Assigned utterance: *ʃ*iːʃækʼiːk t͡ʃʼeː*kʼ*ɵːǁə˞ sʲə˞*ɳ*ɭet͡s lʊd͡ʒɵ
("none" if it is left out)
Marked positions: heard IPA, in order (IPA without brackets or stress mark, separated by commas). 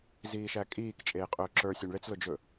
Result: z, qʼ, ɳ